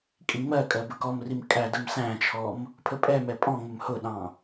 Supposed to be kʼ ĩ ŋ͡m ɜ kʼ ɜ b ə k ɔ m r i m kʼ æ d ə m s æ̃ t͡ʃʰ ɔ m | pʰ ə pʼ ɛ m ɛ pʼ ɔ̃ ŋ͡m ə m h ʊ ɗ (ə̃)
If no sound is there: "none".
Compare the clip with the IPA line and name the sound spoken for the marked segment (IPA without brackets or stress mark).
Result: ɑ̃